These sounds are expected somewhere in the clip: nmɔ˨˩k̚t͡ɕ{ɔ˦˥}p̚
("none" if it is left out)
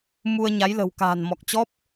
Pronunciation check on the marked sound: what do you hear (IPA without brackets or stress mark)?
ɔ˦˥